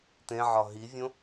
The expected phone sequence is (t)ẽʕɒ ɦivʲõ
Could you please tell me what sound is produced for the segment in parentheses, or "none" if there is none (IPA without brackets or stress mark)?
t